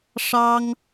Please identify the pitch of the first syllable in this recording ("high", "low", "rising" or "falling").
high